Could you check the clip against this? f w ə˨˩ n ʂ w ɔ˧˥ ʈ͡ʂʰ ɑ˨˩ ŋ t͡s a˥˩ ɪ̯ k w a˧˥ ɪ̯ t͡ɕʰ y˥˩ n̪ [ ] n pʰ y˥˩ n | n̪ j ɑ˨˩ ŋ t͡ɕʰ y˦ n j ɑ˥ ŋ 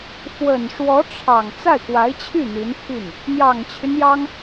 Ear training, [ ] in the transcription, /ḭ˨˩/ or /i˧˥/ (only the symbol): i˧˥